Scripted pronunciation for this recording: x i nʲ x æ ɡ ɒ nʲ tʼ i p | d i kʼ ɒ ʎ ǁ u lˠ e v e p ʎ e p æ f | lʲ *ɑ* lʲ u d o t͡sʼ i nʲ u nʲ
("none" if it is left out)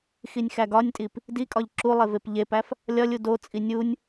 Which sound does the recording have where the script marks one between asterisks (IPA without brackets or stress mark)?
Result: ɒ